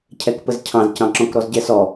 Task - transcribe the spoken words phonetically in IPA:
cʰ ɛ k p ə z cʰ ɑ̃ z c ɑ̃ ǁ ɔ̃ k ɾ ɔ z ɟ ɛ s ɔ

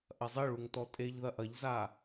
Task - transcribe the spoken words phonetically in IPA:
ʔ ɐ zˤ ɘ ɭ u ŋ t ɔ tʼ e ʎ ð ɐ ʔ ɐ ʎ z a

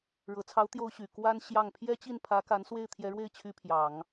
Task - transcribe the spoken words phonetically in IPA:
ɻ ɤ˨˩ t͡sʰ ɑ˧˥ ʊ̯ t̪ j o˥ ʊ̯ ɕ y˨˩ k w a˥ n ɕ j ɑ˥˩ ŋ pʰ j ɛ˥ t͡ɕ i˥˩ n pʰ ä˧˥ k a˧˥ n s w e˥˩ ɪ̯ t̪ʰ j ɛ˧˥ ɻ w e˥˩ ɪ̯ t͡ɕʰ y˥ pʰ j ɑ˨˩˦ ŋ

